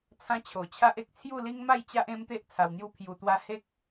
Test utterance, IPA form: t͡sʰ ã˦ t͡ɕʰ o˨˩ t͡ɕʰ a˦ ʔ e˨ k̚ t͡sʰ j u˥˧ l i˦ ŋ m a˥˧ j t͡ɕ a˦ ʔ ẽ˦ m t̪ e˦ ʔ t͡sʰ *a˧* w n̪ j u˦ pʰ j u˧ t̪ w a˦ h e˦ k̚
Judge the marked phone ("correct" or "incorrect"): correct